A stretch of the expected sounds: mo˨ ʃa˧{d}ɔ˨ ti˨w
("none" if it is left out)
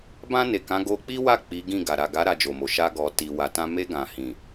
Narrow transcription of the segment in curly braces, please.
ɡ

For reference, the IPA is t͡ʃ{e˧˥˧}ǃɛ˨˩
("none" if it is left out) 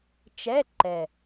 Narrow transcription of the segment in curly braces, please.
ɛ˧˥˧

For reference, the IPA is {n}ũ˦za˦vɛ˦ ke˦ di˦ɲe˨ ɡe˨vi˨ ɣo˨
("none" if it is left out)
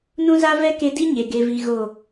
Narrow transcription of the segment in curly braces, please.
n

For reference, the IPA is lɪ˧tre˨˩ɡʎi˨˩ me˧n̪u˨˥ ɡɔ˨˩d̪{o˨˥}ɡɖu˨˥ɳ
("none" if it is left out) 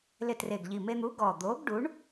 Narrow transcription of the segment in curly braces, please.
o˨˥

